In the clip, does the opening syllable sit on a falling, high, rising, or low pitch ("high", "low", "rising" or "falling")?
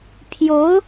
rising